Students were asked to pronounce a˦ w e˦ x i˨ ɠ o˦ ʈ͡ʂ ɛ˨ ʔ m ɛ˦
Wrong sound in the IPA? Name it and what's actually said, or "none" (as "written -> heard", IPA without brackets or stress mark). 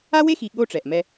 none